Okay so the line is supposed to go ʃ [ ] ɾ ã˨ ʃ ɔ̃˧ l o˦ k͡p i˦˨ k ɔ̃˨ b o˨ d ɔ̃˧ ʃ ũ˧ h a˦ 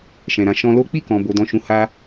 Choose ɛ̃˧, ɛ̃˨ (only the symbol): ɛ̃˨